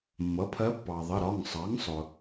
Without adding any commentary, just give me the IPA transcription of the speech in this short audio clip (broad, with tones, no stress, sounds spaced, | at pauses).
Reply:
mː ʌ˩˥ pʰ ɜ˧˥ pː ɑ˩ ðˤ ə˩˧˩ ɾ ɒ˩˧˩ ŋ sˤ ɑ˩˥ ŋ sˤ ʊ˩